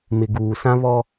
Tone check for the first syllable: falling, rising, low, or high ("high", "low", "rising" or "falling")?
low